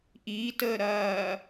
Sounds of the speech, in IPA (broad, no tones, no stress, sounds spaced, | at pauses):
ʔ iː t əː ɾ ɐː